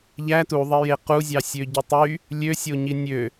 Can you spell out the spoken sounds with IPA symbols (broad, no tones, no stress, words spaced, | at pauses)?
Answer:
ʎæ tuðˤeje quzʲɑ sʲøɟytˤy | lʲøsʲoɲi nʲø